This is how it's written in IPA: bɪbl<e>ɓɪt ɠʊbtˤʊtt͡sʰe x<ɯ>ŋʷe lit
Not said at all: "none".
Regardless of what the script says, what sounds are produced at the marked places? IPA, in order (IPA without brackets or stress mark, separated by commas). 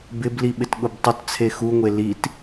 i, u